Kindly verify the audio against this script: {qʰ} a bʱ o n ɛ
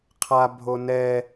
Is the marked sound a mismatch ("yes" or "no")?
no